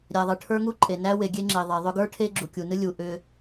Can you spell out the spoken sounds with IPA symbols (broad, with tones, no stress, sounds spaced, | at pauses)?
ɾʲ æ˨ ðˤ ɨ˨ ʈʰ ə˞˦ ŋ u˦ ǃʼ e˨ n æ˦ w e˨ ɡʲ e˦ ŋ͡ǁ e˨ ðˤ e˨ ðˤ ʏ˦ ɡ ə˞˦ ʈʰ e˦ ɡ͡ǁ u˨ kʲ u˨ n ɨ˦ lʲ u˨ ʔ ʏ˦